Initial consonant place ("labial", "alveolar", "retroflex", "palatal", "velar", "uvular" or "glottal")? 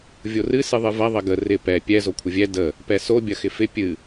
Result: labial